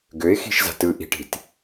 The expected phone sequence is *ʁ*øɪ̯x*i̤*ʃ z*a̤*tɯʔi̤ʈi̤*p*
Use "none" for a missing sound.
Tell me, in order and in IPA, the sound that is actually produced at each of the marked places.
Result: ɡ, i̤, a̤, t

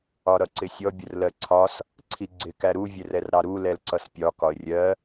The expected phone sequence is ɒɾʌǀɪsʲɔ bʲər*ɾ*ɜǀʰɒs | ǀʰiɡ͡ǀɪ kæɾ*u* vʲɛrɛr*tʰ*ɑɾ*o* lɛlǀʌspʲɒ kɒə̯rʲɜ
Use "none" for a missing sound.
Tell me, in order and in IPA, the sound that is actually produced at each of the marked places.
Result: l, u, ɾ, u

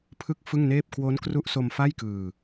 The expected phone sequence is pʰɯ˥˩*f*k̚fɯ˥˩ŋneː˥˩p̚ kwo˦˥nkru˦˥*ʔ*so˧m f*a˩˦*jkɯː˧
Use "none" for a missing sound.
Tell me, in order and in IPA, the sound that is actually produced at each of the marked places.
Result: none, ʔ, a˥˩

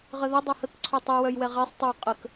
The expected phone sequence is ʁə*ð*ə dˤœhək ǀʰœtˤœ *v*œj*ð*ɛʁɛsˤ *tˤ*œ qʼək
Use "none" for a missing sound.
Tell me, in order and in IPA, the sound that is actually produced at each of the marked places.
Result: ð, w, w, tˤ

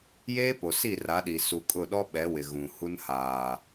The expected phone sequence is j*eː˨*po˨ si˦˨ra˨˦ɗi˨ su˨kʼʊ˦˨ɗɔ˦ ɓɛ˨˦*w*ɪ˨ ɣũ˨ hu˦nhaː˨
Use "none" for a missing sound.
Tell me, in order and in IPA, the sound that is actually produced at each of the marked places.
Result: eː˦, w

